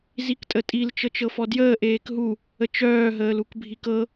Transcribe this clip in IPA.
z i k tʼ ə tʼ i l t͡ʃ ɤ t͡ʃ ɤ f ɔ d j əː ʔ eː k ɦ u | ə t͡ʃ œː ɦ əː l u k bʱ i k ɤ

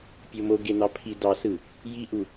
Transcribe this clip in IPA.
pʲ o m o ɡ e n̪ ɑ pʰ i d ɑ s ɯ | j i ʔ u

